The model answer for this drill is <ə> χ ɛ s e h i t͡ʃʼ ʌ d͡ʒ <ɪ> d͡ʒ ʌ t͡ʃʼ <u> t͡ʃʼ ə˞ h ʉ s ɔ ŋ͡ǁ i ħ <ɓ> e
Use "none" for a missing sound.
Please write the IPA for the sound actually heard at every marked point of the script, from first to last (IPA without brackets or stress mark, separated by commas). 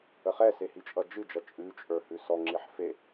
ə, ɨ, ʉ, f